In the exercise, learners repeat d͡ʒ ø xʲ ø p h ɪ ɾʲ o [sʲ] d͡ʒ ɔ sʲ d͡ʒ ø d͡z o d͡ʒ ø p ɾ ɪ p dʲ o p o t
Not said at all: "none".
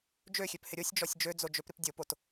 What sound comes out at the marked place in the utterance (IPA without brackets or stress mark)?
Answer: sʲ